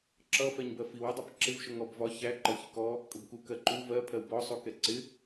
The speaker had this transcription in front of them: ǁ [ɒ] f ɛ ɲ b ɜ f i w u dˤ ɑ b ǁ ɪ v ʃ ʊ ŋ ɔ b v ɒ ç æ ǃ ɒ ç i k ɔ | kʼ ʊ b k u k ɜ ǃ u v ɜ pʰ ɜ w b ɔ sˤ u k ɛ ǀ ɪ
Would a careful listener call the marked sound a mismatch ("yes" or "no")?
yes